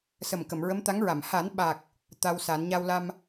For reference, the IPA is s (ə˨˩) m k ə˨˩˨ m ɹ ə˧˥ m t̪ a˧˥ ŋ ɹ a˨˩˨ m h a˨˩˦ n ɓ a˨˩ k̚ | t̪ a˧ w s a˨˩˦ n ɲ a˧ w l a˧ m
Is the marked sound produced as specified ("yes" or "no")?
yes